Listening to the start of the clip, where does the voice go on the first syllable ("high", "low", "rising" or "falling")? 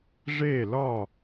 falling